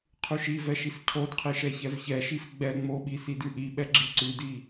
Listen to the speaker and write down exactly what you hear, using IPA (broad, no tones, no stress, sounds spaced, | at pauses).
qʰ ʉ ʃ i v ɛ ʃ i s cʰ o d qʰ i ʃ ɛ ç ɛ v ç ɛ ʃ i f ɡ͡b ɛ ŋ͡m o ɓ i s i d ʉ ʔ i ɓ ɛ ɡ͡ǁ i ǀ ʉ d i